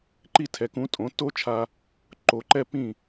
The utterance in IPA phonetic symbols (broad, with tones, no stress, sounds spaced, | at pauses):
ǃ i˥˩ tʰ ɛ˩˥ k ũ˩˥ tʼ õ˩˥ tː o˥ t͡ʃʰ a˧ | ǃ o˩˥ ǃ ɛ˥ pː ĩ˥˩